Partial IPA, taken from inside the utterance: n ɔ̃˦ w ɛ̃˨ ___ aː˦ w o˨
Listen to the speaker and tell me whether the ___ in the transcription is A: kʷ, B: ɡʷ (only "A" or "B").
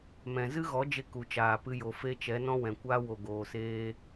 A